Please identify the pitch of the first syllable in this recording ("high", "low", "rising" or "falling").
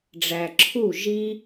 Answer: low